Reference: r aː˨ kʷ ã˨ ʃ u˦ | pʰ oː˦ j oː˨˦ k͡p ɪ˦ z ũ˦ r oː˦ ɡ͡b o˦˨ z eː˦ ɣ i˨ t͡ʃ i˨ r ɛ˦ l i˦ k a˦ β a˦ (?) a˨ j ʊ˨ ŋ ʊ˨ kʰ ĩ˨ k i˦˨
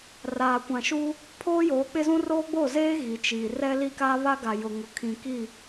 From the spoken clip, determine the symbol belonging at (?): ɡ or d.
ɡ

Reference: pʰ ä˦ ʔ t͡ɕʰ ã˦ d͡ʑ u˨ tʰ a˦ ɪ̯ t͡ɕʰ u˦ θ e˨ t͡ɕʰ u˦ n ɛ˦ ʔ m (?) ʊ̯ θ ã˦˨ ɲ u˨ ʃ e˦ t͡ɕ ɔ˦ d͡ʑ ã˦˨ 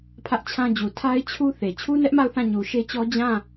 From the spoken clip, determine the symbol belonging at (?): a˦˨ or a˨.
a˦˨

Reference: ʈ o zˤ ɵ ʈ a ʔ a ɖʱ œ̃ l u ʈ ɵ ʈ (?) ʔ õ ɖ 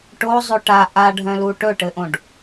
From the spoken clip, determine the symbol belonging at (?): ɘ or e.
ɘ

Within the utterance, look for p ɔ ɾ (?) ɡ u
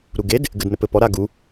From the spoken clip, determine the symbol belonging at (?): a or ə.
a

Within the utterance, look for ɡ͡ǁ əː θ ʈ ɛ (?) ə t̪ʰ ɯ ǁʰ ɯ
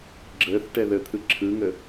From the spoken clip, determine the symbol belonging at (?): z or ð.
ð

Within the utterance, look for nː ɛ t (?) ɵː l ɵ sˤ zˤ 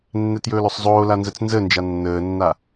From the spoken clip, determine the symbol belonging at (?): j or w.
j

